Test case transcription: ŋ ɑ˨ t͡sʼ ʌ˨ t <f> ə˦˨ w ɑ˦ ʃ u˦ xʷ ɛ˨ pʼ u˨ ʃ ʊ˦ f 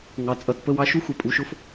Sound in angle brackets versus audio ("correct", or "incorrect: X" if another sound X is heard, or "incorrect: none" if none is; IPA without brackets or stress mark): incorrect: p